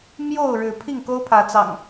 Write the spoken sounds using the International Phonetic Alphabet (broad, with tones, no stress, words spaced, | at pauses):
mjo˥˨ʊ̯ ɻɻ̩˨˦ pʰi˥˨ŋko˦ʊ̯ pʰä˨˦t͡sɑ̰˨˩ŋ